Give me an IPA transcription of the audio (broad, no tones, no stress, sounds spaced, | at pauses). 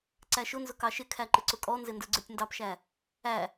ǀ æ ʃ ʊ n z ʊ k ɑ ʃ ɪ kʰ æ ǃ ɪ ǀ ʊ kʼ ɔ n z ɪ n d ə˞ ɡ͡ǀ ə˞ tʲ n d ɑ p ʃ æ | æ